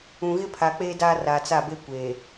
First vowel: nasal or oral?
nasal